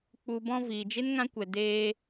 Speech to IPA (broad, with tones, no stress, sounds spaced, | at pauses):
k͡p u˨ b ɔ̃˧ v iː˨ d͡ʒ e˦ n ŋ ã˦ kʷ ɛ˨ d eː˧